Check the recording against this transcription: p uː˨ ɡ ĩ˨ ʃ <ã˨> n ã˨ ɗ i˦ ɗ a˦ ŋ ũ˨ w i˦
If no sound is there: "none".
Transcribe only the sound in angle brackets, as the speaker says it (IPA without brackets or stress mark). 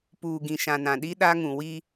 ã˨